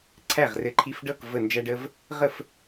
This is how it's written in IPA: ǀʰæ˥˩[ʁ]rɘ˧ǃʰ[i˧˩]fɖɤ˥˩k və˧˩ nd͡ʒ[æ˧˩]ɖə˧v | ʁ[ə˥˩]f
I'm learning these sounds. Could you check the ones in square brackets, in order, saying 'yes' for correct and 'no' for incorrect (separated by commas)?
yes, no, no, yes